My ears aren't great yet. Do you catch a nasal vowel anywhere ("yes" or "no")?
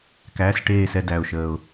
no